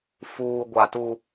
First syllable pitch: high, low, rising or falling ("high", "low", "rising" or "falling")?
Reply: low